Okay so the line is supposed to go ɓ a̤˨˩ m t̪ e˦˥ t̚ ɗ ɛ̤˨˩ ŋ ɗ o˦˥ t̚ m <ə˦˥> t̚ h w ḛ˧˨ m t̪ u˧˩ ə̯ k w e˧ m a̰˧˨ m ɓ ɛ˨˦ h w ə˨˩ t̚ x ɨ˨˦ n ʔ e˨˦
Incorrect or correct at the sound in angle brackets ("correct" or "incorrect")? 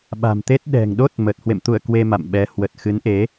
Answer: incorrect